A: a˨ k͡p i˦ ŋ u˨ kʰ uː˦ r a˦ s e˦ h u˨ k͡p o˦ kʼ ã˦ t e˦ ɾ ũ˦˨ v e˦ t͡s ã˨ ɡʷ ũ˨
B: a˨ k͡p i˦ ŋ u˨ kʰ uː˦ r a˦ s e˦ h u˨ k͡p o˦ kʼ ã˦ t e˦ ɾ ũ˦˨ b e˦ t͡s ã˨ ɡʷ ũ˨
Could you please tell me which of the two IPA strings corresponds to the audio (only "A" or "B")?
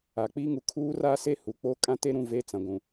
A